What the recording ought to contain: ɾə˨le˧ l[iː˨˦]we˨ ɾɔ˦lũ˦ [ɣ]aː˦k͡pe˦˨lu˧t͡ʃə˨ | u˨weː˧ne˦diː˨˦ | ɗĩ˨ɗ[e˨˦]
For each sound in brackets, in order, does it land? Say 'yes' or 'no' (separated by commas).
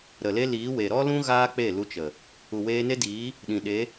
yes, yes, yes